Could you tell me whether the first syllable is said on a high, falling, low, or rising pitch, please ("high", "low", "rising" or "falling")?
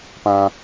low